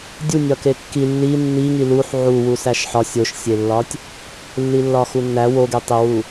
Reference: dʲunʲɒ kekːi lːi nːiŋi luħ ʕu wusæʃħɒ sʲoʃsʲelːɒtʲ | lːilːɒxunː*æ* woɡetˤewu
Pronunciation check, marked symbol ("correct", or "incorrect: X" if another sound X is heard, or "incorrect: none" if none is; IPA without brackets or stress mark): correct